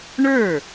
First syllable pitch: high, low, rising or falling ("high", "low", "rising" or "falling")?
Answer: falling